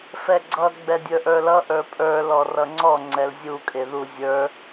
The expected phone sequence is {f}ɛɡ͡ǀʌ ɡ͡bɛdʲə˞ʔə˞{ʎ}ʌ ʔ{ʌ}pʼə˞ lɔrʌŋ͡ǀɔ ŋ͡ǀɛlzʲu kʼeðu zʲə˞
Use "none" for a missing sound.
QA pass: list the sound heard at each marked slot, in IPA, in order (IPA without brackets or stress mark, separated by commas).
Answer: f, l, ə˞